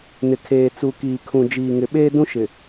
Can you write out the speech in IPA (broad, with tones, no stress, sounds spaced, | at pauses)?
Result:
n ɪ˨ kʰ eː˨ t͡s u˨ k iː˨ kʰ ũ˨ d͡ʒ iː˨ ŋ ɪ˨ ɓ eː˦ d ũ˦ ʃ ɪ˨